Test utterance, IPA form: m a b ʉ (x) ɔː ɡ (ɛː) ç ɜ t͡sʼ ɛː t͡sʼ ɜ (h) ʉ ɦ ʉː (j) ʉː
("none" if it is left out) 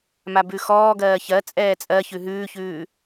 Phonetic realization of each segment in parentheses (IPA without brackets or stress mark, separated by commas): x, ɜː, ç, ç